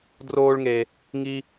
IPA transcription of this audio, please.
d r oː˥ ɭ ŋ e˦ | ŋ i˥

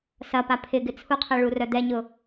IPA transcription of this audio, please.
s ɐ p a pʰ ɪ ɡ ɪ t͡sʰ u qʰ ɛ ɭ u r œ d̪ ɛ ɲ ʊ

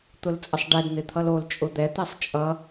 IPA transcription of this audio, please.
t̪ ʊ l t͡sʼ ə sˤ ɖ ɛ d n̪ ɪ t̪ʰ ʌ l o l t͡ʃʼ ʊ d̪ ɛ t̪ ɛ sˤ t͡ʃʼ ʌ

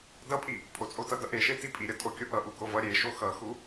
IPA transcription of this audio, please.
d ʌ pʼ i | pʼ o t͡sʼ o t ʌ d ʌ ʔ e ʃ e t i pʼ i ɾʲ ʌ tʼ o kʲ o ʔ ʌ ʔ u ɡ o v ʌ ɾʲ e ʃ o x ʌ x u

